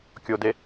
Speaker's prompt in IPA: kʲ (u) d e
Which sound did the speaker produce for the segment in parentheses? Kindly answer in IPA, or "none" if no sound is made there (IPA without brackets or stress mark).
o